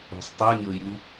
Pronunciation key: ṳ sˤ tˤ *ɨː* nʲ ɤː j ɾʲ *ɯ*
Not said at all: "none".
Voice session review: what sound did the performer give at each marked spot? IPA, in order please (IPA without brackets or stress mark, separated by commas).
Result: ɨː, u